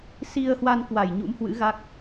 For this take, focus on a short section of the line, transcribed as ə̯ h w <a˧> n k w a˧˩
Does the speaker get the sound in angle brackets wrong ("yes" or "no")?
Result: no